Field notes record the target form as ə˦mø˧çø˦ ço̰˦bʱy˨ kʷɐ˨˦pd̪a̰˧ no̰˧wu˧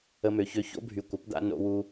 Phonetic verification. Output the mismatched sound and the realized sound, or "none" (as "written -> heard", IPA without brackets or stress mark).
none